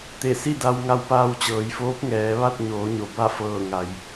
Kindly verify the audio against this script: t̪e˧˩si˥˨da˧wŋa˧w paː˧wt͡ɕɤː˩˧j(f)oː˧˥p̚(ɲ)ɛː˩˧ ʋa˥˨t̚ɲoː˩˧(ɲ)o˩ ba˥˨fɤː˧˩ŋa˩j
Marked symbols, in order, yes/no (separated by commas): yes, no, yes